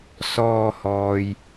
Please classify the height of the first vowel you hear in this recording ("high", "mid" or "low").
mid